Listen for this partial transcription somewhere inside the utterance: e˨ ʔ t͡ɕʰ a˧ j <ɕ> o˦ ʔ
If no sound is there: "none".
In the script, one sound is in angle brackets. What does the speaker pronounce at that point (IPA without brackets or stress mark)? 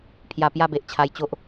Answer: t͡ɕ